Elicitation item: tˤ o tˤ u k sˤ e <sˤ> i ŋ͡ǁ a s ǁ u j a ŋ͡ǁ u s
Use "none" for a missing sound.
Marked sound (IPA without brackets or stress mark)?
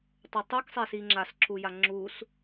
s